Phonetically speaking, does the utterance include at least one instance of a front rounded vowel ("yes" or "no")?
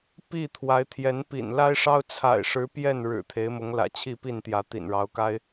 no